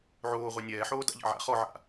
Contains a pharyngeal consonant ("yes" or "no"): yes